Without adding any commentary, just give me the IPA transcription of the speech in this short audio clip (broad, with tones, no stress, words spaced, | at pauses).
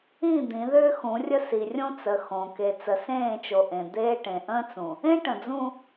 ĩ˦˨ d̪ĩ˨˦ðʏː˦xũ˨˦rʲə˦ si˨rʲõ˦t͡sə˨ xõ˨ ke˨ t͡sə˨sẽː˦˨t͡ʃo˨ ʔẽ˨ d̪eː˦ʈẽ˨ ʔə̃ː˦t͡sũ˨ | ẽ˦ʈə̃˨ d͡zũ˦